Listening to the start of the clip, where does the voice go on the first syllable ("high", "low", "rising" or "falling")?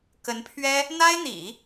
rising